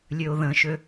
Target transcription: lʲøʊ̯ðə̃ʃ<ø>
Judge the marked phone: correct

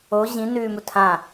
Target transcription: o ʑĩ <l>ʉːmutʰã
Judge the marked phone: incorrect: n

